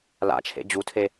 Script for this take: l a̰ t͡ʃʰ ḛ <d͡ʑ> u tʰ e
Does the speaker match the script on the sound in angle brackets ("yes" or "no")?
yes